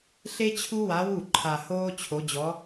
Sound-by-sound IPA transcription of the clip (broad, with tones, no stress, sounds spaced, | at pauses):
ɬ e˥ t͡ɕʰ u˥ w a˧˥ w u˥˩ ǃʰ a˧ h oː˥ t͡ɕʰ o˧˥ d͡ʑ ɔ˧˥